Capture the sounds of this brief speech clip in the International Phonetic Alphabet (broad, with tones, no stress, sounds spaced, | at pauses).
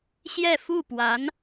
ɕ j ɛ˥˧ f u˥˩ p w a˧˥ n